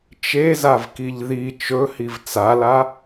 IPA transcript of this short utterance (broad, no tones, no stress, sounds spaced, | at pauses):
t͡ʃ e z a v k i ʎ ð i t͡ʃ ɵ h i v t͡s a l a